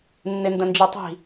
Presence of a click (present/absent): absent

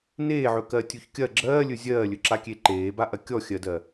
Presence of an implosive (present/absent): absent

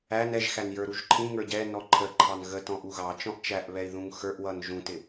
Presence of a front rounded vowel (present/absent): absent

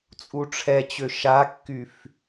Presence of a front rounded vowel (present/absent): present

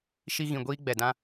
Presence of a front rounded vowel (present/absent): absent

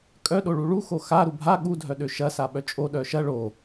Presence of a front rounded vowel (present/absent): present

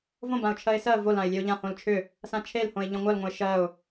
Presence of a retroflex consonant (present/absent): absent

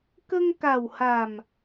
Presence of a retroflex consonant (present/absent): absent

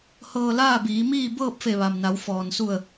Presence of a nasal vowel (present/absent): absent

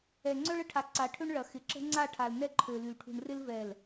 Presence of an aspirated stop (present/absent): present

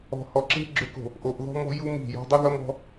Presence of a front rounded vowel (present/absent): present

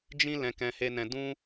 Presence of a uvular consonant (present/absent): absent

